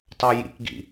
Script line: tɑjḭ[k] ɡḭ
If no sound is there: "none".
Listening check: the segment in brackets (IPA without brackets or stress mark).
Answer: k